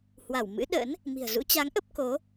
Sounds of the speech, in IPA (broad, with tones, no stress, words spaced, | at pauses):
hwa˧˩wmɨ̰˧˥ɗə̰˧˥n | mi̤˨˩ə̯zṵ˧˥t͡ɕa˨˦ŋʔə˦˥p̚ ko˨˦